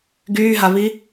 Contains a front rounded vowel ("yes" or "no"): yes